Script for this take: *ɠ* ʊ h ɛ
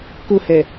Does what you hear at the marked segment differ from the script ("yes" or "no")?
yes